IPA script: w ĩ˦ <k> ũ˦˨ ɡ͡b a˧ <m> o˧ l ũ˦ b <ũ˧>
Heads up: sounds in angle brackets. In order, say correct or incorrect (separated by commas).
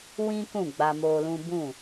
correct, correct, incorrect